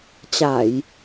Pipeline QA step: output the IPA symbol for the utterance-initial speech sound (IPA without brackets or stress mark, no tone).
t͡ɕ